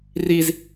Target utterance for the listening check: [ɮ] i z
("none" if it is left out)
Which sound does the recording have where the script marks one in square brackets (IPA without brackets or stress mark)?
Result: r